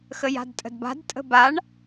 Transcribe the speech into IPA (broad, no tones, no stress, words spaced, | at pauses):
xəja̤dtʼə̤dba̤d tʼə̤baɳ